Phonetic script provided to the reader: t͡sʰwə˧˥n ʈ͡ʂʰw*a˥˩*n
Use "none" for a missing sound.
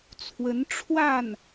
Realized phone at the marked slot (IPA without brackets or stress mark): a˥˩